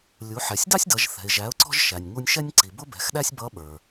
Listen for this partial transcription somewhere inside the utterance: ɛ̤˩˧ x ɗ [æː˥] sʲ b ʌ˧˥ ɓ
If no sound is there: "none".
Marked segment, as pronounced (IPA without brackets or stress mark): æ˥